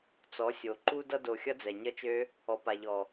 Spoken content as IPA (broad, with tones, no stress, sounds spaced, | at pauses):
t͡s ɔ˨˦ sʲ o˨ ǃ u˧ d ʌ˧ d o˨ xʲ ʌ˦ d͡z ɛ˨ ɲ ʌ˦ t͡ʃ ø˦ | ɔ˨ p a˨ ʎ ɔ˨